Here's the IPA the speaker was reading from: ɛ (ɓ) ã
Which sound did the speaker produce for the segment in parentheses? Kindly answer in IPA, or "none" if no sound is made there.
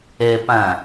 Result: p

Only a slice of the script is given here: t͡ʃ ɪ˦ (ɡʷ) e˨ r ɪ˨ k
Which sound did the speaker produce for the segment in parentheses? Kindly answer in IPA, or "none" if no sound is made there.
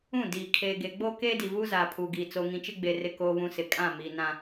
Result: ɡ͡b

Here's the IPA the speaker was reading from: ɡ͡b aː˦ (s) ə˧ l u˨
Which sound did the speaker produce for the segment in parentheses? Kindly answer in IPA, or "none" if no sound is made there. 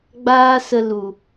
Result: s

